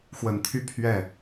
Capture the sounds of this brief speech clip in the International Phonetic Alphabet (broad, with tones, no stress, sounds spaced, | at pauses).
x w ə˨˩ n t̪ʰ y˥˧ pʰ ɥ ɛ˥˩